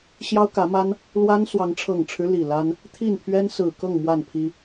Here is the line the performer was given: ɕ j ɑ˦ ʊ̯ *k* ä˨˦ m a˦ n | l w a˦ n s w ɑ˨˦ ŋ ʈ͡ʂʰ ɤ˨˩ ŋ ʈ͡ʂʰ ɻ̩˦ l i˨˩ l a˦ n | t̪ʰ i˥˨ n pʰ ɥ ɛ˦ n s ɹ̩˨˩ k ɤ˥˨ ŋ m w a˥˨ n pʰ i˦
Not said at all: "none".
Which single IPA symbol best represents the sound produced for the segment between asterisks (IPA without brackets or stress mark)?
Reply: k